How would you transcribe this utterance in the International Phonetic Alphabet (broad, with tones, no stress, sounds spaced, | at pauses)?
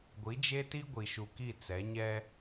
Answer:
ɡʷ i˨˦ d͡ʒ e˦ t i˦ ɡʷ i˨ ʃ u˨ k i˦˨ t͡s ɛ˨˦ ɲ ɛ˦